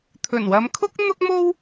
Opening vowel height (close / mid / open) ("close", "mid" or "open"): mid